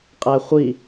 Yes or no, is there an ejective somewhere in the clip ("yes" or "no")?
yes